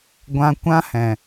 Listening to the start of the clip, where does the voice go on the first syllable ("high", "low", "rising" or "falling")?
high